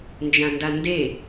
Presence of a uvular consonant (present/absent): absent